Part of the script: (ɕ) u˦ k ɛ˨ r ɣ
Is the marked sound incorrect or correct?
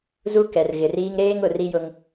incorrect